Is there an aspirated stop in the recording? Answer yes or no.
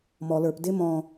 no